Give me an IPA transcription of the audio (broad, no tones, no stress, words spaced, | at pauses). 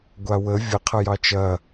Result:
ɡʷawə vʲə qʰɐjɑt͡ʃɐ